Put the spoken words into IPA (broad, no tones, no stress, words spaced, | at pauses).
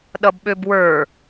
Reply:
ɗʌbɓøbwə˞